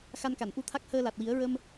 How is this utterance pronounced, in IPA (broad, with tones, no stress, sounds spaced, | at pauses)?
x a˧ n k a˨˩˨ n ʔ u˧ t̪ʰ a˦˥ k̚ h əː˧ l a˨˩ t̚ w i˨˩˦ ə̯ ɹ ə˧ m